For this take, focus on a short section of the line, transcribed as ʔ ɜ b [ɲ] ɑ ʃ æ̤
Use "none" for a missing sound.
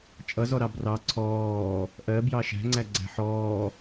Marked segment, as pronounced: j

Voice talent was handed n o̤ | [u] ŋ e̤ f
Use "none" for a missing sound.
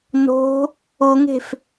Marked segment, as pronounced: o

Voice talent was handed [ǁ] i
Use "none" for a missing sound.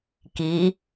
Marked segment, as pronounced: k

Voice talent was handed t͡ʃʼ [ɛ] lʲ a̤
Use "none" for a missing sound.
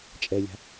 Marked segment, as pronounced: ɛ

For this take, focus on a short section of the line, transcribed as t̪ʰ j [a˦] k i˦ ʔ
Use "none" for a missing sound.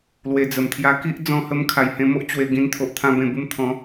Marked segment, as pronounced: a˦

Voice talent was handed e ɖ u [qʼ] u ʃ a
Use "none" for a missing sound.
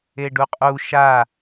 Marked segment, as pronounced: qʼ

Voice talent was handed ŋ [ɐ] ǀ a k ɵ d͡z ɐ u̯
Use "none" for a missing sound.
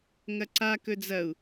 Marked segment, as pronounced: ɐ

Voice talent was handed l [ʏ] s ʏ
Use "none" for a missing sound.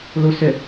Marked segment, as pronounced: u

